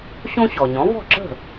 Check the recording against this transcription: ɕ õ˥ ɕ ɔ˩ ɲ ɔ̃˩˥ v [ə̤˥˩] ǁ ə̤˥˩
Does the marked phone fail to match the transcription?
yes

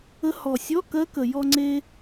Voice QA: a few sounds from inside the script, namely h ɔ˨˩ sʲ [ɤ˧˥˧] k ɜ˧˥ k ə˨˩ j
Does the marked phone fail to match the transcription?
yes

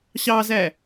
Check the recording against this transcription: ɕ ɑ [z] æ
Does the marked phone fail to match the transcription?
no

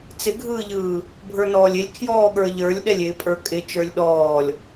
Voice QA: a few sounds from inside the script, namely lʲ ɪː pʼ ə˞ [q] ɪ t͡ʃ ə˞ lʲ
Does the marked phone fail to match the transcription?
yes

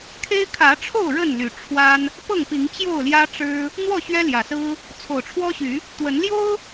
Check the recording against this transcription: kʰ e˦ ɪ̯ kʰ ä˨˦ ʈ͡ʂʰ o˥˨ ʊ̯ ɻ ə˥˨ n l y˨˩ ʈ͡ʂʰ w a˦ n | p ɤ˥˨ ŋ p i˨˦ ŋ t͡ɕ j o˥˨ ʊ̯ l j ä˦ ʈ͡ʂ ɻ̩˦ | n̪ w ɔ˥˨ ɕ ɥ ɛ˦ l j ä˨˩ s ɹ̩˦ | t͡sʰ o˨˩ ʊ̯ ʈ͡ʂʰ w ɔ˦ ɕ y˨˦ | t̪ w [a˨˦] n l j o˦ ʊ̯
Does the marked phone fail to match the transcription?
yes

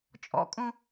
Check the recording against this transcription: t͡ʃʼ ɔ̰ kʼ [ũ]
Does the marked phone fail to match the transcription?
no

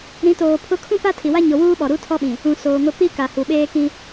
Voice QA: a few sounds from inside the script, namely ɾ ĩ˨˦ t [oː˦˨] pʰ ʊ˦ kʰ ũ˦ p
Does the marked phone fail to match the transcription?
yes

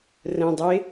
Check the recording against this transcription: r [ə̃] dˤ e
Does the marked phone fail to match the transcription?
no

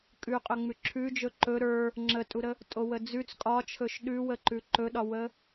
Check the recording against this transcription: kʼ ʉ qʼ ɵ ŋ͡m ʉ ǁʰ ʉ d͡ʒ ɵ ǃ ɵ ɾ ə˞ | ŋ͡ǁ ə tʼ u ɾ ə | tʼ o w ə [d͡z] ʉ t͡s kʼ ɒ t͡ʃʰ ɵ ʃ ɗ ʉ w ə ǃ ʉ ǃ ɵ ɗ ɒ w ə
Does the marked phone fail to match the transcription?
no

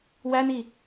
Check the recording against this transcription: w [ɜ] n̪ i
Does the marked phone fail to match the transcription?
yes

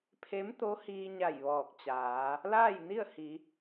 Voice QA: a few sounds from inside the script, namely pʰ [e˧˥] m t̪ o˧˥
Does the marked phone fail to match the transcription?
no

